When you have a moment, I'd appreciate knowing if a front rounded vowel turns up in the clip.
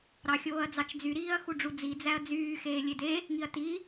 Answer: yes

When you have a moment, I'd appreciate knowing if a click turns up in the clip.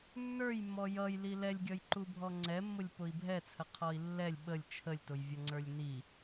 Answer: yes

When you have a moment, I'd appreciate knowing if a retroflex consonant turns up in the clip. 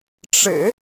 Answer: yes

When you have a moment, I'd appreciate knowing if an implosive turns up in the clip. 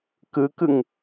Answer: no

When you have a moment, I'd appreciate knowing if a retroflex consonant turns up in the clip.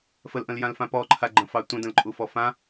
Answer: no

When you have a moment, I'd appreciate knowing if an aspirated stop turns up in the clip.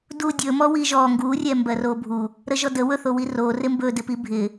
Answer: no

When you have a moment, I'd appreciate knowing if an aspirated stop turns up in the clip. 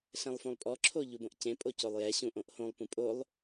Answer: yes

